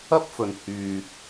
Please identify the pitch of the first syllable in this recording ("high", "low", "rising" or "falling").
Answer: high